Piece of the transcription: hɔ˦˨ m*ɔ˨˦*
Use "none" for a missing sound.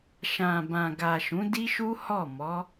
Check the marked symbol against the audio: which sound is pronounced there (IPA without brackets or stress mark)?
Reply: ɔ˨˦